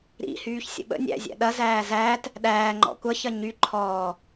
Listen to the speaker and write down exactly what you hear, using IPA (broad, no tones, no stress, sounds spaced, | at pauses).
ɾ ḭ h yː ç sʲ ə̰ ɓ ə̰ nʲ æ̰ zʲ æ̰ ɗ ɐ z æː z æː t | ɗ æː ŋ͡ǃ ɔ̰ kʷ ɐ ç ɐ ɲ y ǃʰ ɔː